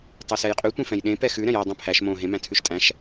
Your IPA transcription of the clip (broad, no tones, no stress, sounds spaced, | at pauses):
tˤ o s ɛ j qʼ y tʷ ẽ f ɛ̃ j ɗ ẽ p ɛ x ʉ ɾ ɛ̃ j æ dˤ õ pʰ æ ʃ m õ ɦ ẽ m æ̃ tʰ ʉ ʃ tʼ æ̃ ʃ